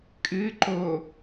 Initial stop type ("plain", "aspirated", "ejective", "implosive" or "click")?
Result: ejective